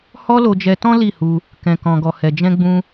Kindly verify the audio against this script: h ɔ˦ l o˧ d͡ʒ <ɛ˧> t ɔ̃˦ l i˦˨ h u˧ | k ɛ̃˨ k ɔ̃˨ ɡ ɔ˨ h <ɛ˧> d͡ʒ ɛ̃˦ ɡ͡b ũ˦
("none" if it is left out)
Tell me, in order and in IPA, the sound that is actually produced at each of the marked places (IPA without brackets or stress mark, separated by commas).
ɛ˧, ɛ˧